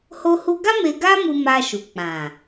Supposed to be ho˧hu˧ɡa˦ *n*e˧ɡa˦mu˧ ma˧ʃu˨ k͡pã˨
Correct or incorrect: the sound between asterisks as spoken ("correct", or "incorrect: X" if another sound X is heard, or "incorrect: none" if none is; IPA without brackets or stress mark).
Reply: incorrect: m